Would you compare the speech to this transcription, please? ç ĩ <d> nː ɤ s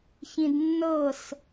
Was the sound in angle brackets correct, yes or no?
yes